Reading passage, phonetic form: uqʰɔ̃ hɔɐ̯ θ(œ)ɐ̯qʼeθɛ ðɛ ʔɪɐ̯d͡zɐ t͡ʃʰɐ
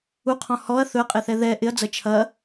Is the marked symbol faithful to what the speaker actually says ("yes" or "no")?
no